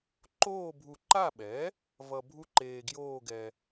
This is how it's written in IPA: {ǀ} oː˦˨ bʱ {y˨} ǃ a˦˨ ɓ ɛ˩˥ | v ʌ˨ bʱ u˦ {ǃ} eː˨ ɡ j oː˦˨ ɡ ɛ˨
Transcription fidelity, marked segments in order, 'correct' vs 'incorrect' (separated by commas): incorrect, incorrect, correct